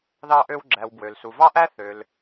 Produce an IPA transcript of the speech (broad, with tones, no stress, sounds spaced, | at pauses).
ð ɑ˧ ʔ ø˧ w ɡ͡ǁ æ˩ w b w ø˩ l s u˩ v ɑ˥ ʔ æ˥ θ ø˩ l